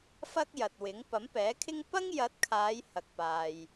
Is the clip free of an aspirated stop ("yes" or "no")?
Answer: no